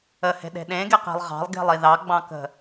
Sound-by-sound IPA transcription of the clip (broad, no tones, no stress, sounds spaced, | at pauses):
ə h e̤ ɗ e̤ ɗ ẽ ɡ e q e̤ lˠ ʁ ɑ̤ lˠ ɡ e̤ lˠ i ð ɑ ɡ͡b ɑ̃ k ə̤